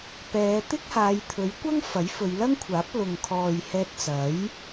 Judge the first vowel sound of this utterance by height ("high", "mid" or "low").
mid